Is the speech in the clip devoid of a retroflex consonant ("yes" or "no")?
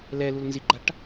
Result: no